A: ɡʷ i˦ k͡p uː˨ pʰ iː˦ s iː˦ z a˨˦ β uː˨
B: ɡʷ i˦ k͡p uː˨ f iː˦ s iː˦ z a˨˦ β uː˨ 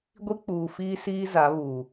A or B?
B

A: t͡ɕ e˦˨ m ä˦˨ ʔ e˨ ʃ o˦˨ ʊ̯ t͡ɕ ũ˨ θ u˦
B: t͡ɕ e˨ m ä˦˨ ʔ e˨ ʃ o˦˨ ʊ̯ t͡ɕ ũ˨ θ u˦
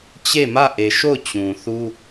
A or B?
A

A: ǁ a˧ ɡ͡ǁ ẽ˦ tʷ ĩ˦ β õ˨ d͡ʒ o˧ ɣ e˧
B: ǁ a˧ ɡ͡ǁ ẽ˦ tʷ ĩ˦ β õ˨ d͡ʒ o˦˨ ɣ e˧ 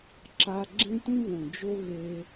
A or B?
A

